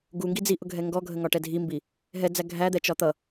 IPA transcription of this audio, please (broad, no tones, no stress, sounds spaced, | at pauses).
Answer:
ɡ u ŋ ɡ i d͡z i ʔ ʊ ɡʱ ɛ ŋ ɡ ɔ ɡʱ ə ŋ ɒ ʈ ɛ dʱ i m b i | ɦ ɛ d͡z æ ɡʱ æ d̪ ɛ t͡ʃ ɒ t̪ ʌ